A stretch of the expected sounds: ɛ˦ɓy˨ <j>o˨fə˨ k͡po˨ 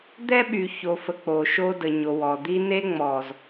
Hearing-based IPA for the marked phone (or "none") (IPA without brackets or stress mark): ç